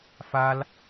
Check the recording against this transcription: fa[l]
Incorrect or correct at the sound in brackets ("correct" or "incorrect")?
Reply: correct